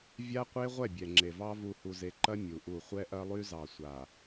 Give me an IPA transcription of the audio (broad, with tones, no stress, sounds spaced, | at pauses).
vʲ a˦ qʷ e˦ ʁʷ ɛ˦˨ bʲ ɛ˨ ŋ͡ǁ e˨ v ɑ˦ v u˨ h u˨ z e˨ ǃ ɐ˦ mʲ u˨ ʔ u˦˨ χʷ ɛ˦ ʔ ɐ˦ lˠ y˦ z ɑ˨ sʷ a˨